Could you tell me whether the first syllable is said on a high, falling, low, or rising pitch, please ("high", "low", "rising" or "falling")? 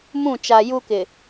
falling